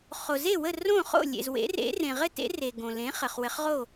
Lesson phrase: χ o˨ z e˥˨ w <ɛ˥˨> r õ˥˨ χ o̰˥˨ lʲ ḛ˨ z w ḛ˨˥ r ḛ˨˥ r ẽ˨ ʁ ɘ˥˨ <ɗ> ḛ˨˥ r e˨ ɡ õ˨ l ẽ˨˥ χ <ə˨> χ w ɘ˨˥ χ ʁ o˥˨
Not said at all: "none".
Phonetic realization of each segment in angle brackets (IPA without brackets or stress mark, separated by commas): ə˥˨, t, ə˨